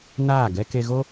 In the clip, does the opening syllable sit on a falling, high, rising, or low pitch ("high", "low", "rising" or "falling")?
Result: falling